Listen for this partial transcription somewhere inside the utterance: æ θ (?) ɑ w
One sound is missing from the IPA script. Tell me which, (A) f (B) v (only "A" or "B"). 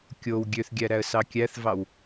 B